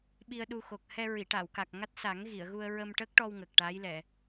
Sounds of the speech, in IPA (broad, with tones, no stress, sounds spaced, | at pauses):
ɓ i˧ ə̯ ɗ u˧ x o˨˩ k̚ h ɛ˧ ɹ i˨˩˨ ʈ a˨˩˨ w k a˨˩ k̚ ŋ a˦˥ t̚ s a˨˩˦ ŋ ɣ i˨˩˨ ə̯ ɣ u˧ ə̯ ɹ ə˧ m ʈ ə˦˥ k̚ ʈ ɔ˧ w ŋ ə˨˩ k̚ ʈ a˧˥ j l ɛ˨˩˨